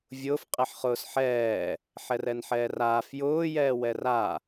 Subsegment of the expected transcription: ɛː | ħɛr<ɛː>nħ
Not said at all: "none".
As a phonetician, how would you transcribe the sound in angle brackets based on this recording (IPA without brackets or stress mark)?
ɛ